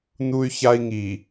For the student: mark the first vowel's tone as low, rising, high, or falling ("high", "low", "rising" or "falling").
high